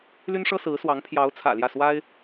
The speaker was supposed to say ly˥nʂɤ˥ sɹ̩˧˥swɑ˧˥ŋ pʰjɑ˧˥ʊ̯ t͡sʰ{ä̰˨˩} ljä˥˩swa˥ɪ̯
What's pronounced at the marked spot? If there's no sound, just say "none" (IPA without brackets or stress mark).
ä̰˨˩